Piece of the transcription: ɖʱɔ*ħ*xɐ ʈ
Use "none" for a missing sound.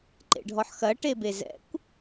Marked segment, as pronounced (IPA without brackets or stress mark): ħ